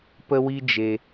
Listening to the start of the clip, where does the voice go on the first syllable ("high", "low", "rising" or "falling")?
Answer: high